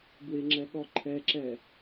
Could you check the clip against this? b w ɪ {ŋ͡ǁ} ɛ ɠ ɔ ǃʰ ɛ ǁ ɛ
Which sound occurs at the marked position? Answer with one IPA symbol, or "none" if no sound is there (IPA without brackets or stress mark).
ŋ͡ǁ